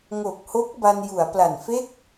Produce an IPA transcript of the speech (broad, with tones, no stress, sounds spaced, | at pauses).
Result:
ŋ o˨˩ k̚ h o˦˥ k̚ b a˧ n j u˩˦ a̯ p l a˨˩ n f e˦˥ k̚